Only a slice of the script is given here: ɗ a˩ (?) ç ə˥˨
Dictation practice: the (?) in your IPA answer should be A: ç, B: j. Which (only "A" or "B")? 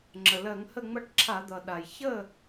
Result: B